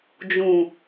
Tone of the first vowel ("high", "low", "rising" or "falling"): low